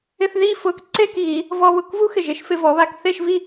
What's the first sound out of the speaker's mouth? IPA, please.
ɪ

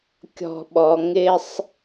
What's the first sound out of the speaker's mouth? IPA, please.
kʲ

